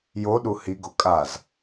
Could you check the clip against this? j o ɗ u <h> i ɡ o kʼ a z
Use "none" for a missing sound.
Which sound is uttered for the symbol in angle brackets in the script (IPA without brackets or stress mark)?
h